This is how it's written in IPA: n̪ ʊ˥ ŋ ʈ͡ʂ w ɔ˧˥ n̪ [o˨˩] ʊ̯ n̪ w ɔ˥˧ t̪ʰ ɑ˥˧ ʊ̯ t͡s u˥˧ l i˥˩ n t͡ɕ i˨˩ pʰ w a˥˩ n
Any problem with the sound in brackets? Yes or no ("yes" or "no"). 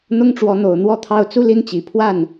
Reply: no